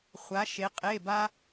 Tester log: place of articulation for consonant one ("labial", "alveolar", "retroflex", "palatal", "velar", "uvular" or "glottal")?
uvular